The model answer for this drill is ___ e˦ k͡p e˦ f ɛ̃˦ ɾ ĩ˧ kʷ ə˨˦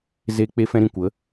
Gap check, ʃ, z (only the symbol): z